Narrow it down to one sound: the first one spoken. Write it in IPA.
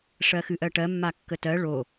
ʂ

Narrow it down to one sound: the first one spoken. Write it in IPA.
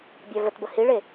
bʲ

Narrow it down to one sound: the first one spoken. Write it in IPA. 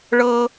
ɭ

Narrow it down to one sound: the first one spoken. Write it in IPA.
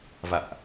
v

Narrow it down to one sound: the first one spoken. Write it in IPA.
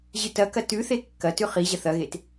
ʑ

